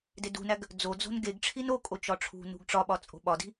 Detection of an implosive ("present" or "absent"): present